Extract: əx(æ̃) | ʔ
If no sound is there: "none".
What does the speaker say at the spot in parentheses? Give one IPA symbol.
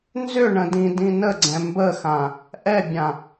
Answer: ã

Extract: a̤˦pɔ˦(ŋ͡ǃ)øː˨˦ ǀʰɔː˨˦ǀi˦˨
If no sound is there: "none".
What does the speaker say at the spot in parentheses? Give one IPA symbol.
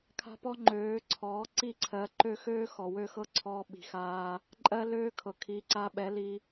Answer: ŋ͡ǃ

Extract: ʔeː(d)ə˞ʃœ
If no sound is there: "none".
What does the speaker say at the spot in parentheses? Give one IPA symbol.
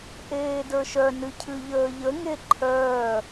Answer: d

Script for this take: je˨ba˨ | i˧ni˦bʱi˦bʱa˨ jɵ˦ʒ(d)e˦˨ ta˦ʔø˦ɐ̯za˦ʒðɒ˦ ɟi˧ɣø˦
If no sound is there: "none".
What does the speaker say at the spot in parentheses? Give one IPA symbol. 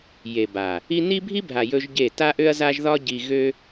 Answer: ɟ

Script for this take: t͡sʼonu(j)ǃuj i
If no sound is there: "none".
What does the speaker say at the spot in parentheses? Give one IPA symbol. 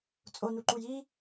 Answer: none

